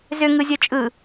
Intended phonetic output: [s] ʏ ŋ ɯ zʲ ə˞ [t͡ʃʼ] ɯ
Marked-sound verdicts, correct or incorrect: incorrect: z, correct

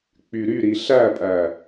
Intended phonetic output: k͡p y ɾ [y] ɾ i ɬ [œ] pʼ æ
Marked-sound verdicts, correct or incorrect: correct, incorrect: æ

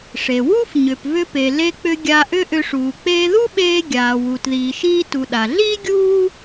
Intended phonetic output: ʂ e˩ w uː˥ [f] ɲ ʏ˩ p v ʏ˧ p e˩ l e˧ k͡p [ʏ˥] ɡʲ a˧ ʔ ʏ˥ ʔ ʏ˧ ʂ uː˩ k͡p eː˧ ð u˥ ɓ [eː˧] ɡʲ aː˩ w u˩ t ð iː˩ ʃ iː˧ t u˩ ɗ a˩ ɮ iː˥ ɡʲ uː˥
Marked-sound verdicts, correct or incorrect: correct, incorrect: ʏ˧, correct

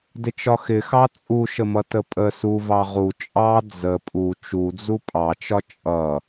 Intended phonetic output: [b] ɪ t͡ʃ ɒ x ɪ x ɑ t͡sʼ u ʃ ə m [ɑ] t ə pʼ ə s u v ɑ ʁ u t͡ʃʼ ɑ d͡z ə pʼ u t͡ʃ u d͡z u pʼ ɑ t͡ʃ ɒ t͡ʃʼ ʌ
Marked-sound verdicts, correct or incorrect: incorrect: d, incorrect: ʌ

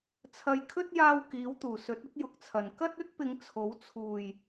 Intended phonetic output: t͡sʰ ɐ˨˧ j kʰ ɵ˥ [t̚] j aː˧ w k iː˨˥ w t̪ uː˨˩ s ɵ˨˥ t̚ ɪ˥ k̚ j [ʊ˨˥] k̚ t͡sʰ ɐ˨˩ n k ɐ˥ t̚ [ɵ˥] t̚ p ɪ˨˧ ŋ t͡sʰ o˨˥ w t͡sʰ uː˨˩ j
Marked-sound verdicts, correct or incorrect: correct, correct, correct

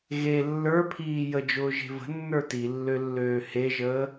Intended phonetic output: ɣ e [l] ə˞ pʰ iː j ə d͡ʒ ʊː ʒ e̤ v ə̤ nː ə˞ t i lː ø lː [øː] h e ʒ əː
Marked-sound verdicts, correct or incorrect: incorrect: lː, correct

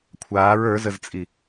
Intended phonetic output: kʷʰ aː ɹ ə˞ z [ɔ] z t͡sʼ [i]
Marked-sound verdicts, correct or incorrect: incorrect: ə, correct

